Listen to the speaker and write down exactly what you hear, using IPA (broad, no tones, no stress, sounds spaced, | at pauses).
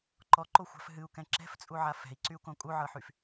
ǃ ɔ ǃ o xʷ a̤ f ɦ ɨ u̯ k ɛ̃ ǁ ɛ̤ f t͡sʼ u ʕ a f ɛ̤ i̯ ǀ y u̯ k õ kʼ u ʕ ɤ ħ y f